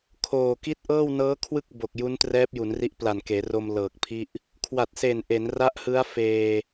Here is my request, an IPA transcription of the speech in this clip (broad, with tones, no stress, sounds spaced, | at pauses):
kʰ oː˨˩ k i˦˥ t̚ ʔ ɤː˥˩ w n ɤː˦˥ kʰ w ɯ˥˩ k̚ b o˨˩ k̚ j u˦˥ n t r ɛː˦˥ p̚ j u˩˦ n r i˦˥ ʔ p l a˨˩ n k eː˩˦ r o˧ m l ɤː˨˩ k̚ pʰ i˥˩ ʔ | kʰ w a˨˩ t̚ s e˨˩ n ʔ e˩˦ n r a˦˥ ʔ h ɯ˦˥ a̯ f eː˧